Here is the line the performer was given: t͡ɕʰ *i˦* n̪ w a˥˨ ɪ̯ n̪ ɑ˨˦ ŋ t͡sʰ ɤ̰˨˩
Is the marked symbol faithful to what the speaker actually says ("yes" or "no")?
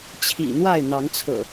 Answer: no